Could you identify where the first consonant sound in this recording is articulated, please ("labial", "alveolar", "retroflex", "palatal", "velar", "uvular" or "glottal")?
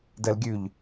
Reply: alveolar